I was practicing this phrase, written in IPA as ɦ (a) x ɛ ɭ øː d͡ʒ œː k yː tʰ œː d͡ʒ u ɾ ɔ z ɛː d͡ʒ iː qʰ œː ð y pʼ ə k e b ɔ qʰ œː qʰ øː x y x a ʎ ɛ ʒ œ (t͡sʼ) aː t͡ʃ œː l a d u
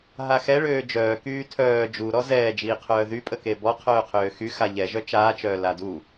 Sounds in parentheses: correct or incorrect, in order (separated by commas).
correct, incorrect